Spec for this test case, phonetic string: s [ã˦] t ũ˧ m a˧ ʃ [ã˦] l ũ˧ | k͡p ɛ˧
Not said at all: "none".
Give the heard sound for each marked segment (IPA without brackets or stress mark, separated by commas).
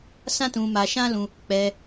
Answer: ã˦, ã˦